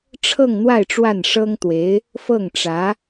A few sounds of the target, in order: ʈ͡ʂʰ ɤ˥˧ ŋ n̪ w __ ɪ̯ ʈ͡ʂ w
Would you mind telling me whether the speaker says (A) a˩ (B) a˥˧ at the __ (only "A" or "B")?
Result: B